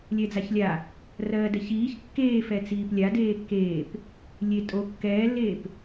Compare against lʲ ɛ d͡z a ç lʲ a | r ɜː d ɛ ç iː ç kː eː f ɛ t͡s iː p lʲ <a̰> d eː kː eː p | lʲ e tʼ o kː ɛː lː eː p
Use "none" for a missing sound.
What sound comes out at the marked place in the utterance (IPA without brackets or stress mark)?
a